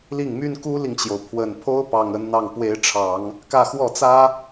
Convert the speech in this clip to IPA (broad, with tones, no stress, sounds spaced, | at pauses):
l i˥˩ ŋ m y˥ n k u˥ l i˨ ŋ t͡ɕ j o˩ ʊ̯ pʰ w ə˨˩ n pʰ o˥ ʊ̯ p ɑ˨˩ ŋ ə˧˥ n n̪ ɑ˥˩ ŋ p w e˧˥ ɪ̯ ʈ͡ʂʰ ɑ˨˩˦ ŋ | k ä˥˧ x w ɔ˥˩ t͡s ä˥